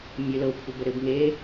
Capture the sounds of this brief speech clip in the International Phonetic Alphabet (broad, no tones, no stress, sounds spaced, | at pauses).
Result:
mʲ ø l ɤ kʷʰ ə b ə ɾ ɘ b ŋ e